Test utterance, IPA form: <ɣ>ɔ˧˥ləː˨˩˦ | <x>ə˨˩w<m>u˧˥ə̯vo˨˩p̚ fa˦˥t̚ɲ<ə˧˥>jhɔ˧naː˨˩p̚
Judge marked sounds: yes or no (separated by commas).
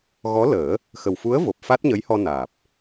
yes, yes, no, yes